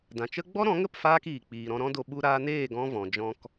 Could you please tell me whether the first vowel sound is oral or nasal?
nasal